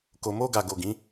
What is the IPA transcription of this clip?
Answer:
ko˨mo˧ɡa˨ɡo˨ ɡĩ˨˦

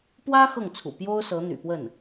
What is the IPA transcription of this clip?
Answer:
pwä˥ xɤ˥˩ŋt͡sʰṵ˨˩ pjo˥ʊ̯ sɤ˧˥n̪y̰˨˩pwə˥˩n

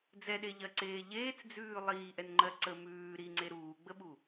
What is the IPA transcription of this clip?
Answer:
d͡zɛɗeʎɜǀeː ʎeːt͡sd͡zʉː lˠiːʔɛnŋ͡ǃɜ ǀə mʉː ɾiŋ͡ǀe ɾuːɡ͡bəɓu

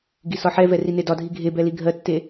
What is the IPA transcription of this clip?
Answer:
ɡisɒħɛvɛ rinedɒdʱi ɡʱebɛ liɡʱɜtːe

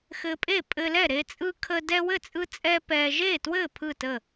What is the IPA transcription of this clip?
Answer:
xɘ˦ pʼe˥˨pʼɘ˦lɛ˥˨ ɾe˦t͡sʼɯ˦ kʰə˦ dɛ˦wɘ˥˨t͡sʼɯ˦t͡sʼɛ˦ pɛ˦ ʒe˥˨twɘ˥˨ pʰɯ˥˨tə˥˨

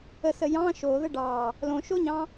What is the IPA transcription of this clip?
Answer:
əsə jɑ̃ ʃoðə ɖɑ | lõʃoɲɑ̃

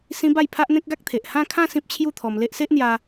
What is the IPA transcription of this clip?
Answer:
sĩ˦ba˥˧j pʰa˦ʔn̪ẽ˦k̚ɡa˦k̚t̪ʰe˨ʔ hã˥˧kʰã˥˧ sĩ˦p̚t͡ɕʰju˥˧t̪ʰɔ˧m le˦ʔ se˦ʔn̪ja˧

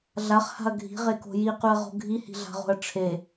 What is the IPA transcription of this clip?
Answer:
ɮaχha̤ɐ̯ ɡʱi̤ʁeko̤ jiqʉɐ̯ʁo̤ ɡʱihi̤ɮa̤ʁo̤ɐ̯ ʈ͡ʂʰe

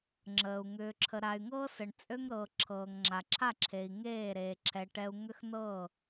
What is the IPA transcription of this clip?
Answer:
ŋ͡ǁəː˨u̯ ŋʏː˨ǁʰə˨ ɾa˨y̯ŋɤː˦sə˨ɳ t͡sʼø˦ŋɾɤː˨ ǁʰɤː˨ŋŋ͡ǁa˨ǁʰa˦˨ǁʰe˨i̯ ŋeː˦˨ɾeː˨ǁʰɛ˨ ʈɛ˨u̯ ŋʏ˦xnɤː˦˨

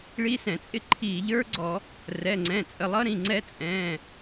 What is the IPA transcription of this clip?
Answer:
ɭi˦˥sɛ̃˧˩˧t͡sʼɪ˦˥ ǃʰiː˧˩˧ʎ ə˞˦˥ɡ͡ǀɔ˧˩˧ | rɛ˩˧˩ŋ͡ǀɛ̃˩˧˩t͡sʼə˩˧˩lˠʌ˦˥ ɾĩ˩˧˩ŋ͡ǀɛ˦˥t͡sʼɛ̃ː˩˧˩

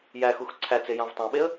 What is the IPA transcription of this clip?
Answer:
jæxux ǀʰæt͡se jɑ̃vtˤæ̃ɓeə̯

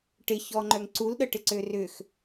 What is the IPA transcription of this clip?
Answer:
ʈɪçɔŋ͡ǃœŋ ǀulɗəʈɪǀø rʏx

